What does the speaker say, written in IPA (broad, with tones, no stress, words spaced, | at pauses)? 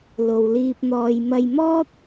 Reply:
lo˨wliː˧p̚n̪ɔː˧j mɐ˧jmɔː˥t̚